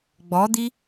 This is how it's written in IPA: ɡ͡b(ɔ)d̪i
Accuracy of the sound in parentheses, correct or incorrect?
correct